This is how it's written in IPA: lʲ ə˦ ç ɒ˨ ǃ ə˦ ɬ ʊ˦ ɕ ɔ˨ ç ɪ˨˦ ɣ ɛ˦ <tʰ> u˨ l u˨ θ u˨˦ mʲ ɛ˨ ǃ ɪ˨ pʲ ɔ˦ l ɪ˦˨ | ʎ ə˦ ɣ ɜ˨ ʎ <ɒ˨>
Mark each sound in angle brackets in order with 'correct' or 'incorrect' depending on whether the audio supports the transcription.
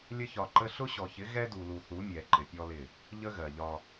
incorrect: d, incorrect: ɒ˦

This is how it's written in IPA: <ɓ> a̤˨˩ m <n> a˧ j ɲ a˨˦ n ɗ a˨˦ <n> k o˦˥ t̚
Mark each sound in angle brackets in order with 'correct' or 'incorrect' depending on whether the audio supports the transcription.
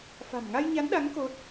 incorrect: f, incorrect: ŋ, incorrect: ŋ

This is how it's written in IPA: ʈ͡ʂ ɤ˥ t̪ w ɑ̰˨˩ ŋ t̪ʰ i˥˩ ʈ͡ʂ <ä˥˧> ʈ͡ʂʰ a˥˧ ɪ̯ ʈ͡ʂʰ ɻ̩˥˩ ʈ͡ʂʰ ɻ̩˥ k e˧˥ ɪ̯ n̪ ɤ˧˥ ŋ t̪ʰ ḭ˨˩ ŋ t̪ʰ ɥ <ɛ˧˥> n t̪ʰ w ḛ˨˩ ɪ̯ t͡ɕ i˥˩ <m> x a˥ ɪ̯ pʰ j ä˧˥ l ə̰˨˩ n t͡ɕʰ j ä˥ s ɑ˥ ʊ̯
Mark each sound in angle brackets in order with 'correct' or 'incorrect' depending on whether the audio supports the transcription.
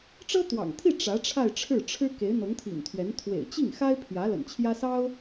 incorrect: ä˧˥, correct, incorrect: ŋ

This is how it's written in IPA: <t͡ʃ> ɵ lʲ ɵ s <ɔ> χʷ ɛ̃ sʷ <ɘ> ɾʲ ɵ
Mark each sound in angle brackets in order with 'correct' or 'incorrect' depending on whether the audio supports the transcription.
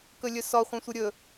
incorrect: k, correct, correct

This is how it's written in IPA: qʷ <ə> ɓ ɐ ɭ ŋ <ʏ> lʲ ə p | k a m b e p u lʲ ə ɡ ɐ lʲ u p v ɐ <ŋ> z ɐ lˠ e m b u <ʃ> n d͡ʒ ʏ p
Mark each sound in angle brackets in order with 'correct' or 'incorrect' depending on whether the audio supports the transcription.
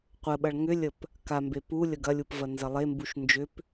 correct, correct, incorrect: n, correct

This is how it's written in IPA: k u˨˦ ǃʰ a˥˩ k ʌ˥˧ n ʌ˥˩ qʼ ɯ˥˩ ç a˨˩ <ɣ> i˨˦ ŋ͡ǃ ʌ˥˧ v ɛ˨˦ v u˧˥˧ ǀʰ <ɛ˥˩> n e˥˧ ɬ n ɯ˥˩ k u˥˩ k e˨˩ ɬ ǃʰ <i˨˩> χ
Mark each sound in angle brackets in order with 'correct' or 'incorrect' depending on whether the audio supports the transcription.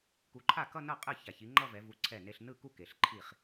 incorrect: ç, correct, incorrect: i˥˩

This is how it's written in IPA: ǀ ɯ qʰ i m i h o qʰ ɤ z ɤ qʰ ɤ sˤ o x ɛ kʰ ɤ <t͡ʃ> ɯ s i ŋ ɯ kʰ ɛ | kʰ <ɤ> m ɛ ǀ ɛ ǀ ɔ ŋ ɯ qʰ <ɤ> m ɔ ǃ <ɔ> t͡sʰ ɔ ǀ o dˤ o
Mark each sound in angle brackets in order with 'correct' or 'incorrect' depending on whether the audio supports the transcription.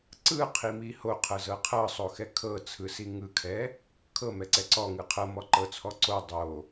incorrect: t͡sʰ, correct, correct, incorrect: ɤ

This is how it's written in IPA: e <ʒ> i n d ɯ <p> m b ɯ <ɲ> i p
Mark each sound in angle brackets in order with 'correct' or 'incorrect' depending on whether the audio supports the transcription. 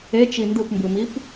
incorrect: t͡ʃ, correct, incorrect: m

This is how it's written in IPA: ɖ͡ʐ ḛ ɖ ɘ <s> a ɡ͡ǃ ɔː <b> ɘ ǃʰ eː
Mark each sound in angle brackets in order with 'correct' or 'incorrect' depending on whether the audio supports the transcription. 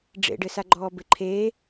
correct, correct

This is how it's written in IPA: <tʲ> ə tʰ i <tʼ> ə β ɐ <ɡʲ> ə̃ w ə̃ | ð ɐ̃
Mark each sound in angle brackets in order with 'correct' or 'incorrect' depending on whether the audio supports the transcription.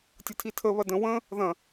correct, incorrect: tʰ, incorrect: d

